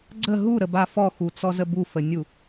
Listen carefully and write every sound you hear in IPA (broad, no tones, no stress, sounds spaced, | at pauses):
ɡ͡ǀ ə ɦ u ɾ ə b a f ɔ x u t͡s ɔ z ə b u f ə nʲ u